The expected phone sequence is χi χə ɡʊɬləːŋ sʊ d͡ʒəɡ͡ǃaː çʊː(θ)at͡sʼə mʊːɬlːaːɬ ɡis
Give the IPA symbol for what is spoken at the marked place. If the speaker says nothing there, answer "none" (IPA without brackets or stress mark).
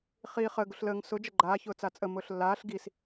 t͡s